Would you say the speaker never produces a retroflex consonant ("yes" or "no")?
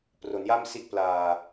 yes